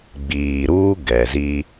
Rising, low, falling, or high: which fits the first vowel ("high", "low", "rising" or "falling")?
low